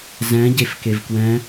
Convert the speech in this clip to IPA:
z ɛ̃ ɟ e f k e v k w ɛ̃

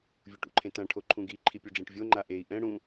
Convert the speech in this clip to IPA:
vʲ u ʈ ṵ ǃʰ ẽ t ã ʈʰ o ǃʰ ũ ɡ i ǃʰ i pʲ u ɖ͡ʐ ẽ ʈ vʲ o ŋ͡ǃ a ʔ e i̯ ʔ ɛ̃ ɽ ũ

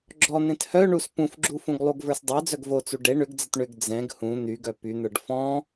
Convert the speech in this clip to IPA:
ɡ͡ǁ ɔ n̪ ẽ t h œ ɳ u s p ũ f ɡ͡ǁ u f ũ ɡ lˠ u ɡ v ə˞ s dˤ ə˞ d͡z œ ɡ v o t͡s u ɖ e ɳ ʏ ɡ d͡z ə t ɳ ʏ ɡ d͡z ɛ̃ ɡ h ũ n̪ y ɡ œ p y n̪ ə˞ ɖ f ɔ̃

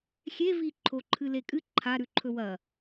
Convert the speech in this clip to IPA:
xʲ e v i ǃʰ o ǃʰ ɨ l e kʼ ɨ ǃʰ a ɾ ʉ ǃʰ ɵ w ɐ

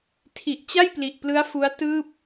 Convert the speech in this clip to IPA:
tʰ i˨˩ ʔ t͡ɕ a˥˩ j p l i˨˩ ʔ p l ɯ˦˥ a̯ f u˦˥ a̯ t ɯː˥˩ p̚

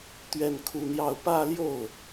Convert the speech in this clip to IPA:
t̪ ɥ ɛ˥˧ n kʰ u˥˧ n̪ j ɑ˥˧ ʊ̯ p ä˥˧ l j o˥˩ ʊ̯

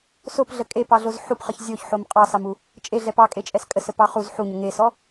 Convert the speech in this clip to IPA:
s o p ɮ ə kʼ e p ɑ ɮ o z ħ u p χ ə ç zʲ o ç ħ o m qʼ ɑ s ɑ m u | t͡ʃʼ e ɮ ɛ p ɑ kʼ e t͡ʃʼ ɛ s kʼ ə s ə p ɑ χ u z ħ u ɲ ə ŋ e s ɔ

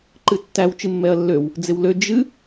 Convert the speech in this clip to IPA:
ǃ ɨ tː æ w t͡ʃ ɨ mː ɛ ɐ̯ lː ø w | d͡z ɪ w l ø d͡ʒ ɨ

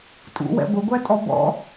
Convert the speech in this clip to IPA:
tʼ ṵ w ɛ̰ ɡʷ ə ɡʷ æ tʼ ɔ b ɔ̰

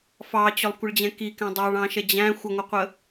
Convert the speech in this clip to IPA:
f ɑ t͡ɕ ʊ lˠ kʷ ə ɭ d͡ʑ ɛ̃ k i k æ̃ dˤ ɑ ɭ ɑ̃ ʃ ɛ d͡ʑ æ̃ xʷ ʌ ŋʷ ʌ qʷ ə

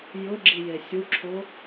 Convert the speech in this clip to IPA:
j ʊ ɡ͡ǁ i j e sʲ u ǁʰ o

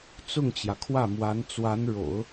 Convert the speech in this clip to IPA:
t͡s ʊ˥˩ ŋ t͡ɕ j ä˩ kʰ w ä˥˩ m w a˧˥ n t͡s w a˧˥ n ɻ o̰˨˩˦ ʊ̯

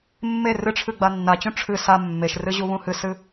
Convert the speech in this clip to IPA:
mː e r ɨ ʈ͡ʂʰ ɨ ɡ͡b a nː a t͡ɕ ũ ʈ͡ʂʰ ɨ s a mː e ʃ r ɨ ʑ u β ũ h ɨ s ɨ

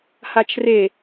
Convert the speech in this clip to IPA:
h a t͡ʃ r e

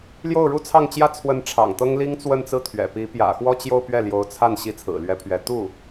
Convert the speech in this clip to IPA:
l j o˥˩ ʊ̯ ɻ u˥ t͡sʰ ɑ˥˩ ŋ t͡ɕ j ä˥ t͡sʰ w ə˧˥ n ʈ͡ʂʰ ɑ̰˨˩ ŋ t̪ ɤ˥ ŋ l i˥ ŋ t͡s w ə˥˧ n t͡s ɹ̩˥˩ t̪ʰ ɥ ɛ̰˨˩ p i˧˥ p j ä̰˨˩ x w ɔ˥˧ t͡ɕ j o˥˧ ʊ̯ p ɥ ɛ˥˩ l j o˧˥ ʊ̯ t͡sʰ a˥˩ n ɕ i˧˥ t͡sʰ ɹ̩˨˩ l ɥ ɛ˧˥ pʰ ɥ ɛ˧˥ t̪ u˥˩

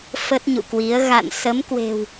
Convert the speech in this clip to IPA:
f ə˦˥ t̚ ɲ ṵ˧˨ k w i˨˦ ə̯ ɣ a̰˧˨ n s ə˨˦ m k w e̤˨˩ w

